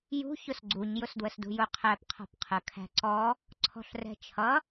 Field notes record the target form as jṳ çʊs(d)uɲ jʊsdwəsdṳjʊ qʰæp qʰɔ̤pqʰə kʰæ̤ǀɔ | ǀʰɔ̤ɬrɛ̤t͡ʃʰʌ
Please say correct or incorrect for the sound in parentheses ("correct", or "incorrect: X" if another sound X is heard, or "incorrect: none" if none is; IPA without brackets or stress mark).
incorrect: ɡ͡ǀ